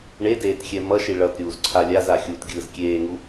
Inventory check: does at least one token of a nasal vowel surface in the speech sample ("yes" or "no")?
no